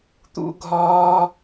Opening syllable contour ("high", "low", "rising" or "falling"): high